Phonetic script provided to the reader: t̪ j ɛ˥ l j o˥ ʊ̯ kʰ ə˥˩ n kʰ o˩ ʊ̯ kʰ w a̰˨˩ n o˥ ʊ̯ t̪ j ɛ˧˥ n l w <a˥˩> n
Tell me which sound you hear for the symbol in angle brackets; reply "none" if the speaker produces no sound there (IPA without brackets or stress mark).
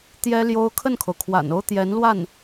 a˥˩